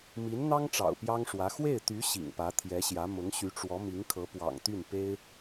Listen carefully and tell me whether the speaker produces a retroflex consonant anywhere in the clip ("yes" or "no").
yes